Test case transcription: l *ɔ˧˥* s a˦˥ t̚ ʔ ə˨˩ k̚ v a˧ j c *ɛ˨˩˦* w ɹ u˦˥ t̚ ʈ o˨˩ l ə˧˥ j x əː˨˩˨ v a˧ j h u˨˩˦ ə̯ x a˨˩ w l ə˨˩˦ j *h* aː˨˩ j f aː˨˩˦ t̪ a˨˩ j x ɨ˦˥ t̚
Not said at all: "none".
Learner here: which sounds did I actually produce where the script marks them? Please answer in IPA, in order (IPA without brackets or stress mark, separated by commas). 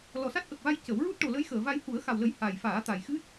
ɔ˨˩, ə˨˩˦, h